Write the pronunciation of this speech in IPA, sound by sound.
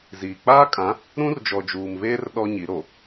ziː˨ k͡paː˦kʼã˨˦ | ɾũ˦rd͡ʒɔ˨d͡ʒuː˨mβeː˦r ɗɔ˦ɲi˨˦ ɾo˨

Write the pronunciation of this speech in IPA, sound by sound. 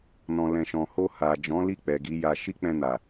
nɔ̃˨lɛ̃˨ʃɔ̃˨ ho˧ha˨ d͡ʒɔ̃˨˦li˦˨ k͡pɛ˨ɡi˨˦ja˧ ʃi˦k͡pɛ̃˧na˨

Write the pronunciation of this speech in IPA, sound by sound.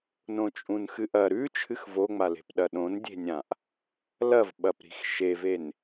nõt͡ʃʼũnxɨʔɐ ɾʉ t͡ʃʰɨxvoŋ͡male̤p ɗɐɗõndʲe̤nʲãʔ | lɐvɓɐpɾi̤x ʃeven

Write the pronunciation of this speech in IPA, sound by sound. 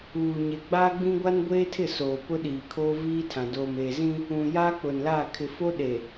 uː˨ɲe˨ ɡ͡baː˦ɡ͡bĩ˦ɡʷa˦n ɡʷeː˦tʰɪ˦˨soː˨ pʊ˦ɗiː˨kʰoː˦ viː˦tʰã˨ doː˨meː˨zĩ˦ | ũ˨ja˦ k͡pʊ˨nla˦˨ kʰɪ˨fo˦ ɗe˨

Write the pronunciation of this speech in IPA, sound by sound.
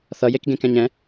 θʌjekɡẽ kɛ̃ɲɛ̃

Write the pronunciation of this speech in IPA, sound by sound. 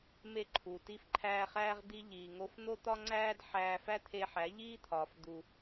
me˦ǃʰu˨ ti˧fǃʰæː˧χæː˧ʁ d̪i˧ʎiː˨ŋo˧f n̪o˦t̪ɒ˦ŋ͡ǀæː˦d ħæː˧fæ˦t̪ʰe˧ ħæ˨˦ʎiː˦t̪ʰɒː˨f d̪u˨

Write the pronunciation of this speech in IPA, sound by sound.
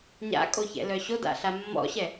ɲa̰kʼoçɛ̰lœ ɕoda̰ɬa mːɔ̰ɕɛ

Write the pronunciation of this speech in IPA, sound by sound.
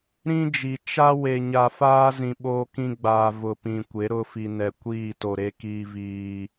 ɾĩ˦ d͡ʒi˨ t͡ʃa˦ we˨ɲa˨faː˦ zĩ˨ɓoː˦kĩ˦ɡ͡baː˨ vʊ˨pĩ˨kʷe˨˦ ɾʊ˦fi˨nɛ˨ kʷiː˦˨to˨ɾe˦ kiː˦viː˦

